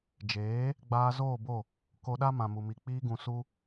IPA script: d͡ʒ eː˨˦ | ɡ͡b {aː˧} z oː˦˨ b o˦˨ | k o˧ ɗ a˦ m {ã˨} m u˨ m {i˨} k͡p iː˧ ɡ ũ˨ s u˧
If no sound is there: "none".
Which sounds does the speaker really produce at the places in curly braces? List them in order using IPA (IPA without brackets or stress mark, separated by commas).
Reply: aː˧, ã˨, i˨